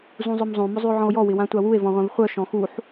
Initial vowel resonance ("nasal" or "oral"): nasal